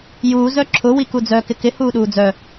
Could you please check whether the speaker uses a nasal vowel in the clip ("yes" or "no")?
no